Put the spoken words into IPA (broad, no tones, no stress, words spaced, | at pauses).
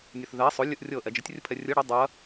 nʲəθðɛ sˤo lʲɯʔrʲɤ ʔɛd͡ʒətʲ rʲɯpʰɛrʲɯ ɽə dˤɯɐ̯